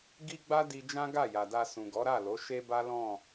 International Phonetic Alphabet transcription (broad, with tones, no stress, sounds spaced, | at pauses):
ɡ i˦ ɡ͡b a˦ d i˧ d͡ʒ ã˦ ɡ a˦˨ j a˨ d a˧ s ũ˨ ɡ ɔ˨˦ ɾ a˦˨ l o˨˦ ʃ e˦ b a˦ l ɔ̃˦˨